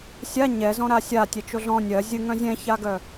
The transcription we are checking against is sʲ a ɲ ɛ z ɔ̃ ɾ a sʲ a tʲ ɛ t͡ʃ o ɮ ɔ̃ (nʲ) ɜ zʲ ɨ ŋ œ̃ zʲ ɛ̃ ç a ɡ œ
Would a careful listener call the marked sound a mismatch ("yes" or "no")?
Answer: no